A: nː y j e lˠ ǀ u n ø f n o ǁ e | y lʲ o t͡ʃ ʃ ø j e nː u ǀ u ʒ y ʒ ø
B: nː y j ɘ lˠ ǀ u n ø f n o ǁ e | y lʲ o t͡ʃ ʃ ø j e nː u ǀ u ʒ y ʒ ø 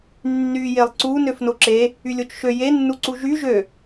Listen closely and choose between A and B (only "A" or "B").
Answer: A